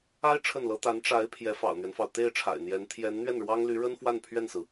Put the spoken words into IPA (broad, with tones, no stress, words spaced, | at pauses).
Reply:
a˥ɪ̯ ʈ͡ʂʰə˥˩nlɤ˥ t̪a˧˥nʈ͡ʂa˧˥ɪ̯ pʰjɛ˧˥fɑ̰˨˩ʊ̯n̪ɥɛ˦nfɑ˩ʊ̯ t̪e˥˩ɪ̯ ʈ͡ʂʰa̰˨˩ɪ̯n̪jɛ˧˥n t̪ʰjɛ˧˥n n̪ɥɛ˥˩nɻwɑ˥ŋ ly˧˥ɻə˥n fwa˥˧npʰɥɛ˥˩nsɹ̩˩